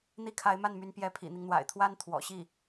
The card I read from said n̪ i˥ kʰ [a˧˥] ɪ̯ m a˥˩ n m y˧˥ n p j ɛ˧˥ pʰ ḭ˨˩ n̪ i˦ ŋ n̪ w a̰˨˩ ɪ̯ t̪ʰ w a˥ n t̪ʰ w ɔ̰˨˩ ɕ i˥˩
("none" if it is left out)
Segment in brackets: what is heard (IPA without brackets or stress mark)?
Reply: a˧˥